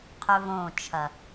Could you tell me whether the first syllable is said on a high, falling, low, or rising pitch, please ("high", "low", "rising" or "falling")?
high